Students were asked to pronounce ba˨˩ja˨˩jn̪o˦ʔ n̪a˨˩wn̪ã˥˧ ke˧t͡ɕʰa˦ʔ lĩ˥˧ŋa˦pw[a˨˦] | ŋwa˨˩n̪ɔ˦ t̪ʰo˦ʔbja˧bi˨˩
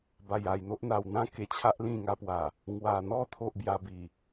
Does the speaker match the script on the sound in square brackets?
no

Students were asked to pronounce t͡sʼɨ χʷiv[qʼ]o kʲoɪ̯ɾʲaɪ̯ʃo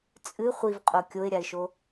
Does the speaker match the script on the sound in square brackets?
yes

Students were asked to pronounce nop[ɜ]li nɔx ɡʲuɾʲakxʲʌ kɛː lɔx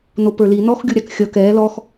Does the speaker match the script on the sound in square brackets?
no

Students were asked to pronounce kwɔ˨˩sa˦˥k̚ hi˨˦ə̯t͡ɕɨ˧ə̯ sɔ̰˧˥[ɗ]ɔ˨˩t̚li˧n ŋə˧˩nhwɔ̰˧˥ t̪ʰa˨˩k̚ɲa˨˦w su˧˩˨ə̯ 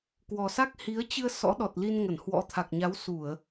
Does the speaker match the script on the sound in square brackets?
yes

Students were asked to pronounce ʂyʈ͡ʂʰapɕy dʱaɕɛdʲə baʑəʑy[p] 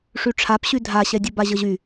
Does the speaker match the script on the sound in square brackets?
no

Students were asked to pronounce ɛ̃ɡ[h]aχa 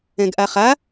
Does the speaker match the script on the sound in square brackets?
no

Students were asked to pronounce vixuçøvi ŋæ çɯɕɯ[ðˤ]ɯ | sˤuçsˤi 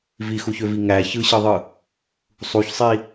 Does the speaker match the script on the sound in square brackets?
yes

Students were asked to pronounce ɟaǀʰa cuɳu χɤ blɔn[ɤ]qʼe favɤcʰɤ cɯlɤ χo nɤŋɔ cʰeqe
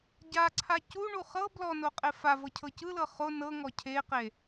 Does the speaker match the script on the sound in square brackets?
no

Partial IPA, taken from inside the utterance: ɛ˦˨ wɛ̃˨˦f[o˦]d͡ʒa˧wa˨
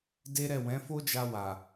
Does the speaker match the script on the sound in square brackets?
yes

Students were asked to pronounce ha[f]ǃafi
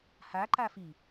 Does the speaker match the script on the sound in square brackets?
no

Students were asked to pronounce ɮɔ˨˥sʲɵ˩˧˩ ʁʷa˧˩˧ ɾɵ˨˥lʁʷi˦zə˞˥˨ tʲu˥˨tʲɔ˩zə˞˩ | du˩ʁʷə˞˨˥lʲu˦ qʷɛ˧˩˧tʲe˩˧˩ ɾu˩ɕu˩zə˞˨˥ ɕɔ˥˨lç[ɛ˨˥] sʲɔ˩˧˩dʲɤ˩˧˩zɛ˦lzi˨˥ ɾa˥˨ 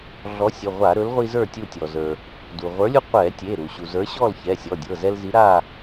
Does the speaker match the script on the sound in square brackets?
no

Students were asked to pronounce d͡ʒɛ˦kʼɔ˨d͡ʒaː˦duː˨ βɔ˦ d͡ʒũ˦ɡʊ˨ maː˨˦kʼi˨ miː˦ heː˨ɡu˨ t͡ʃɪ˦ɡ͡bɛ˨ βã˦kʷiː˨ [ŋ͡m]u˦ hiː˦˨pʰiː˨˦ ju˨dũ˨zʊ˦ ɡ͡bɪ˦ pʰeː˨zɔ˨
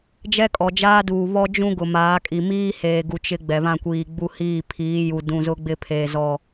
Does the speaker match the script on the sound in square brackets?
no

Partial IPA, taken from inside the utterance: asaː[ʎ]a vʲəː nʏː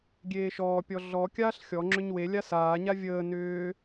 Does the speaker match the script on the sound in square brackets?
no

